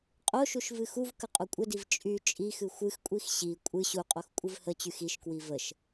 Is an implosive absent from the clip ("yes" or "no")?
yes